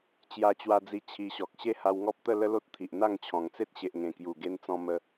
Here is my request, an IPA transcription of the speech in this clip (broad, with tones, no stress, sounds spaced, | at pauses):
t͡ɕ j a˧ t͡ɕ w a˧ d͡z i˧ t͡ɕʰ i˧ ɕ ɔ˨ k̚ ɕ e˦ h a˧ w ŋ ɔ˦ p̚ t̪ ə˥˧ l ə˦ l o˦ t̚ t̪ʰ i˨ ʔ n̪ a˥˧ ŋ t͡ɕʰ ɔ̃˨˩ ŋ t͡s e˦ t̚ ɕ e˨ ʔ ŋ ẽ˨˩ k j u˨˩ ɡ e˧ n t͡s ɔ̃˧ m ə˧